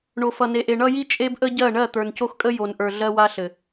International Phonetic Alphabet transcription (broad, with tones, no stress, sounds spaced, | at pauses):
ɳ o˨ f ʌ˨ n e˨ ʔ e˨ ɳ ʌ˦ j i˦ t͡ʃʼ e˦ b ʔ ə˦ ɟ ɜ˦˨ ɳ ɜ˦˨ t̪ ə˞˨ n c o˦ x kʼ ə˦ j o˨ n ʔ ə˞˨ ɮ ɜ˦ w a˦ ɬ ɘ˨